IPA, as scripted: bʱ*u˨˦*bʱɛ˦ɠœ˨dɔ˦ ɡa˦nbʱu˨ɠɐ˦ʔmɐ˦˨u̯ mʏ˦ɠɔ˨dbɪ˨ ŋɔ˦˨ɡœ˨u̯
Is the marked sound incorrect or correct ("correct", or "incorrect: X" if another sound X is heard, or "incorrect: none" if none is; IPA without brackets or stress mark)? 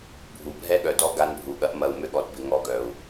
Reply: incorrect: u˨